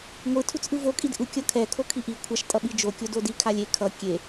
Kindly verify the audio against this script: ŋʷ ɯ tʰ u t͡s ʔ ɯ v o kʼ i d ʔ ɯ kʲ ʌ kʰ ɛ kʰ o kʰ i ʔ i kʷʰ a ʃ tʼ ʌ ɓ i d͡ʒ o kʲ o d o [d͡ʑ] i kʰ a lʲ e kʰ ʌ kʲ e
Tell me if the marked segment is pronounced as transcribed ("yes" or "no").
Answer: no